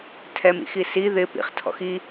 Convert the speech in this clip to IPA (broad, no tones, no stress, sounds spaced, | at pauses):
tʰ ɛ m ḭ x i s i ð ɪ p ḭ χ tʰ ɔ̰ x i